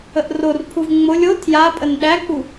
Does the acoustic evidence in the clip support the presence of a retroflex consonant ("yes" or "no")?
no